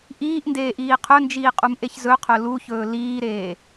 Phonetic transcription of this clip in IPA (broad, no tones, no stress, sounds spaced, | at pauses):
ʔ iː ʔ n d eː ʔ iː qʰ ɵ n d͡ʒ iː qʼ u m ʔ e ç z ɵ qʰ ɵ l u ç ɵː l iː ɾ eː